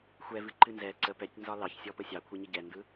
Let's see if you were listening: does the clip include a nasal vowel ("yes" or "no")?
no